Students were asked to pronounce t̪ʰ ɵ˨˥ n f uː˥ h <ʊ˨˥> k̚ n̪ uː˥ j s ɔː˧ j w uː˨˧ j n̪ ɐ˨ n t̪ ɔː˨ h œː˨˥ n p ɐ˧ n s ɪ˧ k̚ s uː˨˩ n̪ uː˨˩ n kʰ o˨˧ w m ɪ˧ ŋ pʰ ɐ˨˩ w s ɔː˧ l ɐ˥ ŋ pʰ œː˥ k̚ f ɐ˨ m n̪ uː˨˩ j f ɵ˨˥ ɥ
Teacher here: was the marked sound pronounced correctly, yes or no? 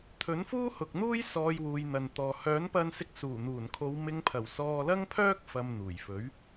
no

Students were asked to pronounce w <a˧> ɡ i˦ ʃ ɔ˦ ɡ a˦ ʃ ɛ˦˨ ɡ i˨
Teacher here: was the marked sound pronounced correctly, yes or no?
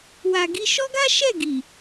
yes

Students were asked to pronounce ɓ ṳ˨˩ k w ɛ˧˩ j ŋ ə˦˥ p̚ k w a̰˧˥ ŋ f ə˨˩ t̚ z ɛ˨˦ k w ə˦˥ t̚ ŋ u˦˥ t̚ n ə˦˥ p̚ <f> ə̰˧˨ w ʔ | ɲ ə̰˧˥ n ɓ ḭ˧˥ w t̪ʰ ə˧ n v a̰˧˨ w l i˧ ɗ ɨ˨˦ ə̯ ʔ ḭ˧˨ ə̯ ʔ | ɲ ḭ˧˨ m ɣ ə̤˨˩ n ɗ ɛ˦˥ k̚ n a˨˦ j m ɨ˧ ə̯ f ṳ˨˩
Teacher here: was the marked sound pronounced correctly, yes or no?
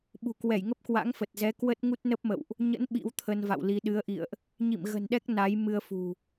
no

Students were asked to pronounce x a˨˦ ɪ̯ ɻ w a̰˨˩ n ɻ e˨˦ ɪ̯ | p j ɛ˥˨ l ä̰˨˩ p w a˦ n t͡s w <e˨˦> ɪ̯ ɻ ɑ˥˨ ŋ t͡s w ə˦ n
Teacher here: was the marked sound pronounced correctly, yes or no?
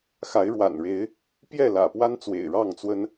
no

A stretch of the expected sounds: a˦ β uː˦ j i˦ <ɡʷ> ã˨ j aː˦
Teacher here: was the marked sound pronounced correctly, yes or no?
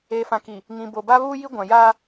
yes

